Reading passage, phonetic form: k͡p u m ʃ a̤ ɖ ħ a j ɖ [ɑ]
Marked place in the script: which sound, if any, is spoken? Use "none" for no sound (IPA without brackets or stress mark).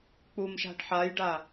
a